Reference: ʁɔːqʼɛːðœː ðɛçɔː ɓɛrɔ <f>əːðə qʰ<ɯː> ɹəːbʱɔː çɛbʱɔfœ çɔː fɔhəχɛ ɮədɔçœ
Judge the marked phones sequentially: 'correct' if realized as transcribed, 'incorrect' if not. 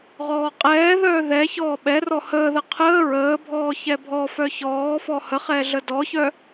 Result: incorrect, incorrect

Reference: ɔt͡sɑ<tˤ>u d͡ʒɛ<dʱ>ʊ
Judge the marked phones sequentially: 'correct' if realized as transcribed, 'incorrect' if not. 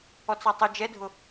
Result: correct, correct

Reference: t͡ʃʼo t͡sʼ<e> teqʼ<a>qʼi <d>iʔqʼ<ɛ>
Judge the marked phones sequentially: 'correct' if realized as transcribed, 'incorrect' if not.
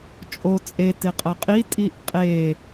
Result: correct, incorrect, incorrect, incorrect

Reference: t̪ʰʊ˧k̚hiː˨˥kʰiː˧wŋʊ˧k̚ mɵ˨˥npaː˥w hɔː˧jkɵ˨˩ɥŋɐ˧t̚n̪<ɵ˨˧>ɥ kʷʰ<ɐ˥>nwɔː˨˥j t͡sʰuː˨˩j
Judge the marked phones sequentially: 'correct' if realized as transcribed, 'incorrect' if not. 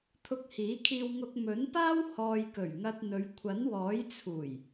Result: correct, incorrect

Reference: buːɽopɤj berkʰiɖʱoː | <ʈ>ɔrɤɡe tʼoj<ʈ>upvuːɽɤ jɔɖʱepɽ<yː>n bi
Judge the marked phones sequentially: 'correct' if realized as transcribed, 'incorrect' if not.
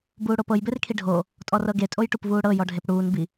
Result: incorrect, correct, incorrect

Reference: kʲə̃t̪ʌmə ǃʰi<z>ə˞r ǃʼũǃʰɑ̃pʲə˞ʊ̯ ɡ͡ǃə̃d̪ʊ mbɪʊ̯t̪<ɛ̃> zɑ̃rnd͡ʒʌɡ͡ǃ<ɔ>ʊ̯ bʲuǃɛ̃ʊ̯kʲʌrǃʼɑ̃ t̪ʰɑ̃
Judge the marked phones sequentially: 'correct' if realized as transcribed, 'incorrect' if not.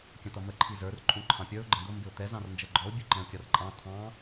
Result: correct, incorrect, correct

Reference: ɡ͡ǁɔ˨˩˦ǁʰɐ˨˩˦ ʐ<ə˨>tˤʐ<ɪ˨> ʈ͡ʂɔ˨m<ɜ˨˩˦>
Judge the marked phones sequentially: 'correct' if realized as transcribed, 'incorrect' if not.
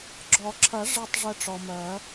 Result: incorrect, incorrect, correct

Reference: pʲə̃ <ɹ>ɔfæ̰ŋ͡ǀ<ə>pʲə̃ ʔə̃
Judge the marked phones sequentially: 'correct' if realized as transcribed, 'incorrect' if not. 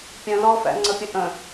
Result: incorrect, correct

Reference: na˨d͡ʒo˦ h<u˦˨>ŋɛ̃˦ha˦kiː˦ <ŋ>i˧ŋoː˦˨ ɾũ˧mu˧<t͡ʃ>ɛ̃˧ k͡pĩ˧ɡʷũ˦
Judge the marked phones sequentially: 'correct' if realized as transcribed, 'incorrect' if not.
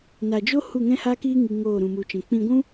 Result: correct, correct, correct

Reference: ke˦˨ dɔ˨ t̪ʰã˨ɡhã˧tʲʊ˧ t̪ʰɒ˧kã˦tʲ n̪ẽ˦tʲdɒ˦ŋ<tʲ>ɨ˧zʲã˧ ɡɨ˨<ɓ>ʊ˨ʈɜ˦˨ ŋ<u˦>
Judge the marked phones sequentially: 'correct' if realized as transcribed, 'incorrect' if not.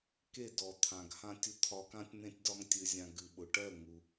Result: correct, correct, incorrect

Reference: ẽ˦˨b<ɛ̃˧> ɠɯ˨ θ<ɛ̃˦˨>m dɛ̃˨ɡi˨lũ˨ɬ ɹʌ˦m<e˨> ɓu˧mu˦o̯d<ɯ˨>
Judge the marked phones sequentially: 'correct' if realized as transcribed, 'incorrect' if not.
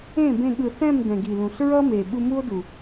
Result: incorrect, correct, correct, incorrect

